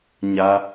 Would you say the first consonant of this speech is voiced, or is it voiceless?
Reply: voiced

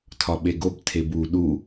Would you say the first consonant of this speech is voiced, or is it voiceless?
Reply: voiceless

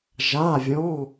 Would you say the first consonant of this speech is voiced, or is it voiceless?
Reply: voiced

